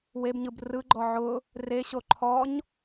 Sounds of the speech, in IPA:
w e b ɲ ɯ b r ɯ ɡ͡ǃ ɔ ʕ ʊ | r e ɕ o ǃʰ ɔ ɲ

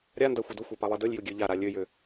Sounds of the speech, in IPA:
ɾʲ a n d a xʷ ə d ʊ xʷ a p a lˠ ɛ d ə lʲ j ʊ ɡʲ ø ʎ a ɾ a lʲ ø j ø

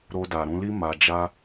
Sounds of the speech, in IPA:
ɾ o˧ d a˨ ɾ ũ˧ l i˦ m a˧ d͡ʒ a˦

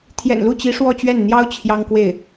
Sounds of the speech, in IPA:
t̪ʰ j ɛ̰˨˩ n l u˥˩ t͡ɕ i˧˥ ʂ w ɔ˥˧ t͡ɕ ɥ ɛ˥˩ n n̪ j ɑ˥ ʊ̯ t͡ɕʰ j ɑ˥ ŋ k w e˥˩ ɪ̯

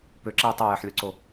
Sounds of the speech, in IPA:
p ø ǁ ɛ i̯ tˤ e j ɛ ħ lʲ o ǀ o

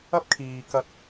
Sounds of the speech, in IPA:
ɐ˥ p̚ kʰ iː˨ k ɐ˧ t̚

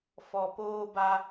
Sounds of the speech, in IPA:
f ɔ˨ p oː˦ b a˦

